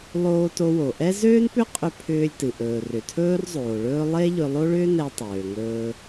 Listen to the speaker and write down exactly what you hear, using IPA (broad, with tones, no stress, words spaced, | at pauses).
lˠoː˧to˧wo˩ʔɛ˥ zøː˥npʏ˥qʼʏ˧ pʰʏː˧lʲtɨ˩ ʔɵː˩rʏ˩tʰɵː˥rzˤoː˩ ɭɵː˧ lˠe˥ ʎɵ˧lˠo˥ɭʏː˥ nɛ˧ tˤøː˩ŋɵː˧